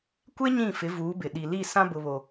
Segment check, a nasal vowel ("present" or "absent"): present